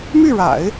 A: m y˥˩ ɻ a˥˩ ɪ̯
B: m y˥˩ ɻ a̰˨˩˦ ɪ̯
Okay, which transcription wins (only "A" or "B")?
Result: B